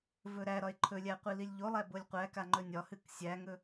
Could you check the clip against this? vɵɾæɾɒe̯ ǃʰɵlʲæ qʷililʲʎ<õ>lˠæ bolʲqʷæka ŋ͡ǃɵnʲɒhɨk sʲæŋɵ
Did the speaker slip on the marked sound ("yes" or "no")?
yes